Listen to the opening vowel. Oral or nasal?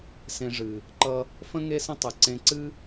nasal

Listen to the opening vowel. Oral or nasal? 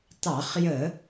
oral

